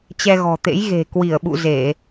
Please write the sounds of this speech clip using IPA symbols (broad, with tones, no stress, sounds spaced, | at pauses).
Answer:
t͡ɕ ɛ˧ ɣ ɔ̤˨˩ t̪ ḛ˧˥ j ɣ e̤˨˩ k w i˧˩ ə̯ ɓ ṵ˧˨ z e˧˩˨